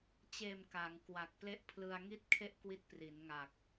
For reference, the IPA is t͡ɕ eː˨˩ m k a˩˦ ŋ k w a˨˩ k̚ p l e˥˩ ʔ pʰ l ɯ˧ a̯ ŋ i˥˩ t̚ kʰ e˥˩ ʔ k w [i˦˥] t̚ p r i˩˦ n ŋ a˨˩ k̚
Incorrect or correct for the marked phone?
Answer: correct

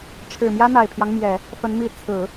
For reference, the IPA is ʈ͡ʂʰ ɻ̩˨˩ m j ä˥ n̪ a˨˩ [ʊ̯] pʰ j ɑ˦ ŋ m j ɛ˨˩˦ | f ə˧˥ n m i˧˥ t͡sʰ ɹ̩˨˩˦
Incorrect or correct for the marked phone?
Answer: incorrect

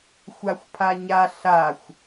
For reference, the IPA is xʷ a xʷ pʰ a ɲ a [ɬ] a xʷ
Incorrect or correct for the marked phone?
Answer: correct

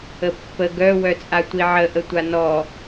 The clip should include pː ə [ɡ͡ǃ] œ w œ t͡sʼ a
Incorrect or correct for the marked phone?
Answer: incorrect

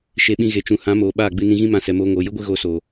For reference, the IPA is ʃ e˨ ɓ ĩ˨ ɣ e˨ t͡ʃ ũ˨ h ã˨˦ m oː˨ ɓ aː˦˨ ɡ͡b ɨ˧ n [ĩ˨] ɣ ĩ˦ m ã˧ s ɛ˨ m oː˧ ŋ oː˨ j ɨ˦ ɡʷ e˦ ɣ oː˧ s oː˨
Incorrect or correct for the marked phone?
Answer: incorrect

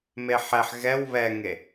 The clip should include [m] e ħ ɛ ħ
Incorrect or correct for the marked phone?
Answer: correct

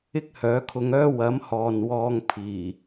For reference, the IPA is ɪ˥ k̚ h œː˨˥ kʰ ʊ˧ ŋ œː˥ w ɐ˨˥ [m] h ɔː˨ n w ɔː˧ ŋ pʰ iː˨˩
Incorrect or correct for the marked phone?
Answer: correct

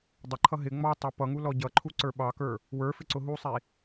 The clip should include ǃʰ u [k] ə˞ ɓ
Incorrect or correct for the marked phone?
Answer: incorrect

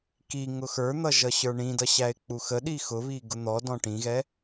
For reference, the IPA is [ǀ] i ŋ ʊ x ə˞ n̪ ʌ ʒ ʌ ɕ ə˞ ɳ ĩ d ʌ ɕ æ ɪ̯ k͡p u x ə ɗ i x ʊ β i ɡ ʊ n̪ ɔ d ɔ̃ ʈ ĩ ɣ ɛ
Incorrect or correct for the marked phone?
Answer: incorrect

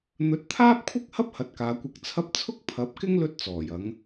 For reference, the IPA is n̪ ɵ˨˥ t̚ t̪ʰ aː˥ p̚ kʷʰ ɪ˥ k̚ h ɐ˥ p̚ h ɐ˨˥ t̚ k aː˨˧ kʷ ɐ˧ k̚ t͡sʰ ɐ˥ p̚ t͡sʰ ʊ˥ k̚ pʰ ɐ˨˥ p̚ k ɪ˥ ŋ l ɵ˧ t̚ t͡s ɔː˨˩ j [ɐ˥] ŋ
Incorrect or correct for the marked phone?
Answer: incorrect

